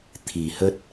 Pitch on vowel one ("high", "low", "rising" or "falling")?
low